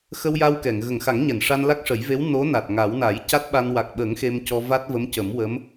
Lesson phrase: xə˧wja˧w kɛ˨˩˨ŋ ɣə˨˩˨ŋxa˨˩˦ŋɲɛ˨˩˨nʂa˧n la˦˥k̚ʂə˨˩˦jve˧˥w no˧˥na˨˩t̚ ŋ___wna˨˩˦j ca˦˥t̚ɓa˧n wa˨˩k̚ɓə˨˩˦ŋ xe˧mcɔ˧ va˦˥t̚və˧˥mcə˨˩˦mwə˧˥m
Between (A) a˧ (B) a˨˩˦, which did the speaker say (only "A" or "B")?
B